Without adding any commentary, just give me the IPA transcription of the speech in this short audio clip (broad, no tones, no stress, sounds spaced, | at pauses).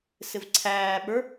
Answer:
s ɪ v ǀʰ æː ɓ ə˞